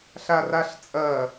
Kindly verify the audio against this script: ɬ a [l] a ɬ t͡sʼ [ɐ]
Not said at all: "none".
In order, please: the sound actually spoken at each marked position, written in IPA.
r, ɐ

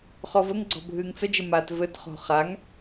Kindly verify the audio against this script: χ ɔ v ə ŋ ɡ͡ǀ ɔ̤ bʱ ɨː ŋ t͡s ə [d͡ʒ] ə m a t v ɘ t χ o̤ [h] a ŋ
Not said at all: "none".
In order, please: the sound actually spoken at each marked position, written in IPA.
d͡ʒ, χ

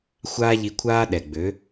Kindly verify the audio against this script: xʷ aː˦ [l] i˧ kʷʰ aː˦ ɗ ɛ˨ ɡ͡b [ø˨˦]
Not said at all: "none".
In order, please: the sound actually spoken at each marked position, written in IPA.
ʎ, ø˨˦

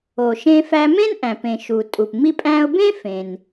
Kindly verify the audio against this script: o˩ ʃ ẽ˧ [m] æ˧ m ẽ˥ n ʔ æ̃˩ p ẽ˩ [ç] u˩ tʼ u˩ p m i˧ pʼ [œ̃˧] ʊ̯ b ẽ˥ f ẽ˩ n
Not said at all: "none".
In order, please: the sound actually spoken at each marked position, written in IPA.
f, ʃ, æ̃˧

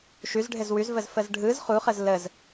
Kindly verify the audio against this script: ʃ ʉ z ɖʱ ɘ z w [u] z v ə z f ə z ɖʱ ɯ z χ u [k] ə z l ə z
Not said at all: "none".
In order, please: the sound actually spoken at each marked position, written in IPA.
ʉ, χ

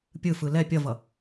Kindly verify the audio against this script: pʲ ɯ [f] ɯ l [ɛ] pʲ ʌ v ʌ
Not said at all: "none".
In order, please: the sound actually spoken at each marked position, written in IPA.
f, ɛ

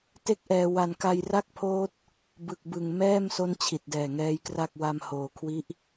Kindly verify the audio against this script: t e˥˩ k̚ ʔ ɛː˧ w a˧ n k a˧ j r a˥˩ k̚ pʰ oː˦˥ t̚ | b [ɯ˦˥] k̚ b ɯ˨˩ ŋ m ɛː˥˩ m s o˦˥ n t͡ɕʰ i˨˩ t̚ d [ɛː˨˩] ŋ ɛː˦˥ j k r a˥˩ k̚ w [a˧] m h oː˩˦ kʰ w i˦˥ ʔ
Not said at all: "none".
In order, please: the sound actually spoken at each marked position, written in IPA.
ɯ˨˩, ɛː˨˩, a˧

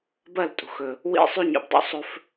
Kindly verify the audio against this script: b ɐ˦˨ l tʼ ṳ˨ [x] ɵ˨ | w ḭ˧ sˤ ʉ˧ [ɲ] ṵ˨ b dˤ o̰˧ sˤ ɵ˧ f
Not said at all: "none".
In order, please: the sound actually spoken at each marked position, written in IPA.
x, ɲ

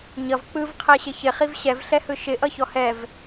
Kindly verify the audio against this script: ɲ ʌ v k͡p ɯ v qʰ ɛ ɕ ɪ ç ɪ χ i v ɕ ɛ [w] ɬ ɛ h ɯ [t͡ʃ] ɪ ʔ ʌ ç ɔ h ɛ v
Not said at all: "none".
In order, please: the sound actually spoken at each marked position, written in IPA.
v, ʃ

